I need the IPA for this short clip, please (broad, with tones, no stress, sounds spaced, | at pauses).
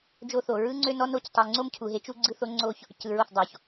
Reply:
d͡ʒ o˦ θ o˨ ɹ ɯ˦ ŋ͡ǀ ø˦ n ɔ˦ n o˦ c tˤ ɯ˨ ŋ͡ǀ o˦ m cʰ u˨ ɦ e˦ t͡ʃ u˦ ɡ͡ǀ ɯ˦ θ o˦ ŋ͡ǀ o˦ ç | c ɯ˨ ɹ o˦˨ θ dˤ o˨ ç